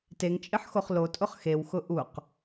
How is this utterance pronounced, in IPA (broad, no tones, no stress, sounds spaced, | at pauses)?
t e ŋ t͡ʃʼ ɪ ħ x o χ l o tʼ ʊ χ x e w x ʊ ʔ u q